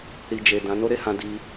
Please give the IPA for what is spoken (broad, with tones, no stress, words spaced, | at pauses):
ɾi˨d͡ʒe˨ dã˨˦no˦ɾe˧hã˧ di˧